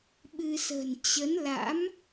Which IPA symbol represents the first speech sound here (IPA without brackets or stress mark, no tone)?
ɓ